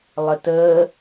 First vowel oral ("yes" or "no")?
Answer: yes